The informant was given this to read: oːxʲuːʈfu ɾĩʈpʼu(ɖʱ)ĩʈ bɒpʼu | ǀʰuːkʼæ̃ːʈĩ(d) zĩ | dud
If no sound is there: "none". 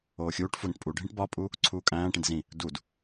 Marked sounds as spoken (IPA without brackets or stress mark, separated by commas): ɖʱ, d